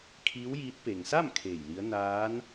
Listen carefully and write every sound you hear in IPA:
kʰ iː˧˥ w j iː˧˥ t̚ p e˩ ŋ s a˥˨ m kʰ eː˧˩ j l i˧˥ ə̯ n aː˧˥ n

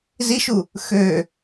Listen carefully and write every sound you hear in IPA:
z i ʃ u | x ø

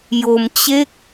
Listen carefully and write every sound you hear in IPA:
j o˧ m t͡ɕ e˥˩ k̚

